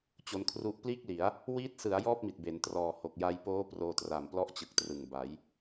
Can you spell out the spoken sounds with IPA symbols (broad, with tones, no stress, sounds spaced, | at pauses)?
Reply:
t͡ɕ o˧ n kʰ r u˦˥ ʔ p l iː˥˩ k̚ l i˩˦ a̯ | w iː˦˥ t̚ s ɯ˩˦ a̯ j ɔː˥˩ p̚ m i˨˩ t̚ b e˩˦ n t r ɔː˨˩ h o˨˩ k̚ j a˧ j p oː˦˥ p r oː˧ t r a˨˩ m p l ɔ˦˥ ʔ t͡ɕ ɯ˨˩ k̚ t r ɯ˨˩ ŋ b a˩˦ j